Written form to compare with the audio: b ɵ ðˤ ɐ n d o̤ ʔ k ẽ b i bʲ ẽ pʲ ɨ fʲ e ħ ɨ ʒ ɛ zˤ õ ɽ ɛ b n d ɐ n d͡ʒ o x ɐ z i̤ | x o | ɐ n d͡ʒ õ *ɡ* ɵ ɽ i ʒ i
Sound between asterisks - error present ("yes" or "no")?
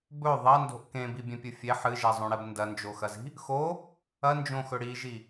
yes